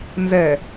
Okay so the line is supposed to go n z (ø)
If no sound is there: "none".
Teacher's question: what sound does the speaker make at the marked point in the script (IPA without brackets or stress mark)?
ɛ